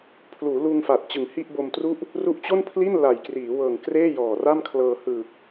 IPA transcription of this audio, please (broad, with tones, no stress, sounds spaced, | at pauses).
pʰ l uː˩˦ l uː˧ ŋ f a˨˩ t̚ t͡ɕ ɯ˨˩ ŋ h i˥˩ ʔ b o˧ m t r u˥˩ ʔ | r u˦˥ ʔ t͡ɕ o˥˩ n pʰ l i˥˩ n l a˨˩ j k r iː˩˦ w ɤː˨˩ ŋ k r eː˥˩ j ɔː˨˩ r a˥˩ m kʰ l ɤː˧ h ɯː˨˩ k̚